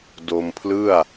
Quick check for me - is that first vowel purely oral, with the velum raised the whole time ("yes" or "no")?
yes